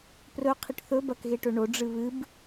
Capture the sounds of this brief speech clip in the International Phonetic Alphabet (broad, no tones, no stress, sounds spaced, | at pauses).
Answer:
p r ɵ qʰ i ʈ θ ɵ b ɐ k ɣ e ʈ ɵ ɳ o ɖ͡ʐ ɨ β ɨ b